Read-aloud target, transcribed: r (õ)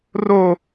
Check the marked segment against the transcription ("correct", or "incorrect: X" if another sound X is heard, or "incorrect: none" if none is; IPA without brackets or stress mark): incorrect: o